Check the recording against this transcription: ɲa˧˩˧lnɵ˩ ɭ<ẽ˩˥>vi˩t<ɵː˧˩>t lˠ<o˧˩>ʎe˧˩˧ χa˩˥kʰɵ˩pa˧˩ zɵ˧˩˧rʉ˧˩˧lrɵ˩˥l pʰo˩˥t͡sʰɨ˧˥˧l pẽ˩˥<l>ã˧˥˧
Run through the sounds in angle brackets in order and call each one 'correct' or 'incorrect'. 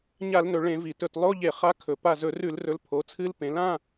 incorrect, incorrect, incorrect, correct

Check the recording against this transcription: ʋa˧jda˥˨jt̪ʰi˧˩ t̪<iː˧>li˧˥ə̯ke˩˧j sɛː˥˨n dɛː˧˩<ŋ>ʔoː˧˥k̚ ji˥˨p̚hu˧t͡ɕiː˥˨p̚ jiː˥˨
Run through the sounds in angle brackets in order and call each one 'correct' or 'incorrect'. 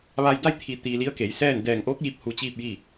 correct, correct

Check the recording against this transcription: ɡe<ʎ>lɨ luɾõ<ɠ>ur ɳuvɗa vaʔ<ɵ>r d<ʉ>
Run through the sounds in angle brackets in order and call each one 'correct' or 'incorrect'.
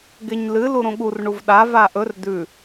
incorrect, correct, correct, correct

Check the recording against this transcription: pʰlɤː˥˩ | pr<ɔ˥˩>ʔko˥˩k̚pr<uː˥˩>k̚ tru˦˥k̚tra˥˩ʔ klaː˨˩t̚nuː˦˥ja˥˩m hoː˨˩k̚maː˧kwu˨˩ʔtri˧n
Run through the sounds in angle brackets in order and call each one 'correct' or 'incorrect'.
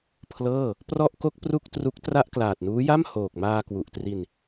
correct, incorrect

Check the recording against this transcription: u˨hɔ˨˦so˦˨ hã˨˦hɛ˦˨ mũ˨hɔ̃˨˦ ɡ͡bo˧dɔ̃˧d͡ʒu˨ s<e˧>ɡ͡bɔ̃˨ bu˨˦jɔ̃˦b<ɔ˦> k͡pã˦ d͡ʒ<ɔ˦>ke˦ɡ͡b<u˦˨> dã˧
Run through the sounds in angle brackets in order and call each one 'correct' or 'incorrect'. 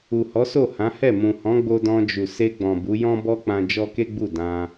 correct, correct, correct, correct

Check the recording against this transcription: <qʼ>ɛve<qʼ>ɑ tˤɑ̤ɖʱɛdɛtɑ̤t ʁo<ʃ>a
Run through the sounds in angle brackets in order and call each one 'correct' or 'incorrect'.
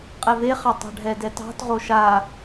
correct, incorrect, correct

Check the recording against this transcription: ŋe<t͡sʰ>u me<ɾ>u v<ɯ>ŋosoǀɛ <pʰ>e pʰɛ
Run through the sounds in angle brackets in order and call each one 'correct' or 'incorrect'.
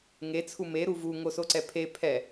correct, correct, incorrect, correct

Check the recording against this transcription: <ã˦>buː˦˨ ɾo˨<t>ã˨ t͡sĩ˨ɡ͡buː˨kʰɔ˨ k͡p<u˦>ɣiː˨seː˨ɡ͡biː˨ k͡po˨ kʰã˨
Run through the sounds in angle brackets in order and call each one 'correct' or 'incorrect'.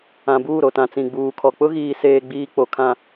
incorrect, correct, incorrect

